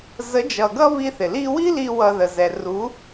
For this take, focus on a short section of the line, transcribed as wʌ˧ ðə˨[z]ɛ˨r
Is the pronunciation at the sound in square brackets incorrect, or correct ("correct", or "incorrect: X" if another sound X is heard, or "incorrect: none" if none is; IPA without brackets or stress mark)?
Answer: correct